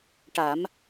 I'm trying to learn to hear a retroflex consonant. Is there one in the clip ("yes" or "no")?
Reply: yes